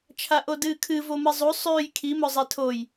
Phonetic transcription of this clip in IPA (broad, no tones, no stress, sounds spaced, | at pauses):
t͡ʃʰ a ʔ o d ɨː kʰ ɨ v o m ɨ zˤ u sˤ ʉː j kʰ i m ɵ zˤ e tʰ o j